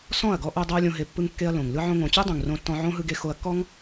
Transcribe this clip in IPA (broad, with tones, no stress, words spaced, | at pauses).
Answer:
sɔ̃˦˨ɐ̯ɡɔ˧ʔo˧ dˤɤ˦ɐ̯lʲõ˧ɦe˧ pːɯ˦ŋkːe˦ɐ̯lõ˨ŋ lɯ˧ʕõ˧ŋõ˨t͡ɕu˦ dˤũ˨ŋ rõ˧tːɔ̃˧ʕõ˦ ɦɯ˧ɡe˧xo˧ɐ̯kːɔ˦ŋ